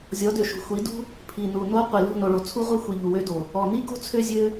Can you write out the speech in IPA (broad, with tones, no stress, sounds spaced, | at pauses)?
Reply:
zʲ ɔ˨˦ d ø˨ ʃ ṳ˨ xʷ i˨˦ d ṳ˦ | pʰ i˨ n u˨ n o˦ qʷ i˨ l ṳ˦˨ n o˨ ɭ o˨ t͡sʰ u˦ ʁʷ i˦ xʷ i˨ ʎ u˨ w ø˦ d o˨ | ɔ˨ n i˦ ɡ o̤˦ t͡sʰ ø˦ zʲ ø˦